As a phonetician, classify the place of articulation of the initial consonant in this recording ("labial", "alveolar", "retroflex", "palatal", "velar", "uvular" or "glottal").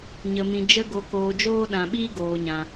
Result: palatal